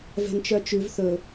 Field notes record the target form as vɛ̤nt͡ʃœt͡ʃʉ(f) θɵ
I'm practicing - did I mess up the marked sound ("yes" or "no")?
yes